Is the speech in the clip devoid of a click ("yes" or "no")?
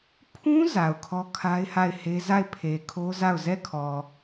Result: yes